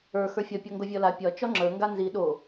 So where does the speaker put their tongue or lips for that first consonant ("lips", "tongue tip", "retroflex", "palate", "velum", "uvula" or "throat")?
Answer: velum